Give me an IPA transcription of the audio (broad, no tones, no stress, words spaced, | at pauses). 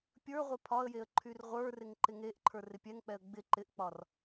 pʲə˞ʁʷɪ pʰɒə̯jeə̯ ǃʰyrʁʷə˞rɪŋ ǃɪŋeʔǃʰə˞r ɪpʲɛŋk͡pɛə̯ ɡ͡bɪ ǃɪʔk͡pɒr